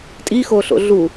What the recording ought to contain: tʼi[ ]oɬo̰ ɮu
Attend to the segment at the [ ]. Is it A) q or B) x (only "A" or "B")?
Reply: B